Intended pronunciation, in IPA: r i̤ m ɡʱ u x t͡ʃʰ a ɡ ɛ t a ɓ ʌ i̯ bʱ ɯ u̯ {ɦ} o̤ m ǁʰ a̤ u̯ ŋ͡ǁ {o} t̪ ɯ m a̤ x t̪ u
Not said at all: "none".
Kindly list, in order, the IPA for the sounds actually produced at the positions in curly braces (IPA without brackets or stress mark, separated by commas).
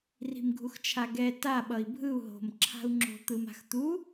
ɦ, o̤